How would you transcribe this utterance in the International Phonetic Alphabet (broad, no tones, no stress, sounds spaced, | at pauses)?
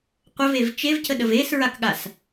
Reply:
qʷ ə v e v t͡ʃ e v c ə ɗ ə v e s ɹ a k ɠ a s